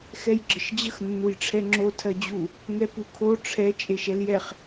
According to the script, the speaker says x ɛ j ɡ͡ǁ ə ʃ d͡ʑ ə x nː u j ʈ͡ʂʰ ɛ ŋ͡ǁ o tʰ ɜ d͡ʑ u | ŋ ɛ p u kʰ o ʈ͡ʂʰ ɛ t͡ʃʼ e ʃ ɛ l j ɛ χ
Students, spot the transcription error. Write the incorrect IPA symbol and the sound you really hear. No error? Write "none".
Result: none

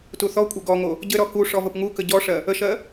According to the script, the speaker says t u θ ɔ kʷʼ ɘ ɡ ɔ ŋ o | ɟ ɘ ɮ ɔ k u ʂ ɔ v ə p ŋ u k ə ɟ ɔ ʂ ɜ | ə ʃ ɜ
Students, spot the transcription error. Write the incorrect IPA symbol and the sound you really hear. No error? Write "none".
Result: ɮ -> ɾ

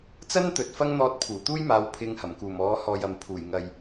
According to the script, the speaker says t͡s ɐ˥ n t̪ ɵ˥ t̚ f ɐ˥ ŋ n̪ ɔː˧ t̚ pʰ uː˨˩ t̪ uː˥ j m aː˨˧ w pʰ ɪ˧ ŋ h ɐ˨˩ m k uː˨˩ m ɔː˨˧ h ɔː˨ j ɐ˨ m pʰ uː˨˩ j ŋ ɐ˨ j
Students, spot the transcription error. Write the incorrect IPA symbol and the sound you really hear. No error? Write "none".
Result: ɵ˥ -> ɵ˨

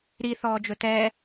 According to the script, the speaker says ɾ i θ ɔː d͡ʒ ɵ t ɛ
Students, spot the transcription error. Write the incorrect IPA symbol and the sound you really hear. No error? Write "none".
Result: none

